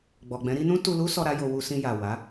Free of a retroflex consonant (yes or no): yes